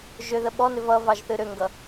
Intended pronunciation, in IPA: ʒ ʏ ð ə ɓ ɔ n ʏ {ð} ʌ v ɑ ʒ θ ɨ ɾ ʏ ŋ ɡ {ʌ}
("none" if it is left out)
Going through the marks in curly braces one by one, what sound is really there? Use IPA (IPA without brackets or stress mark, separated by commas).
v, ʌ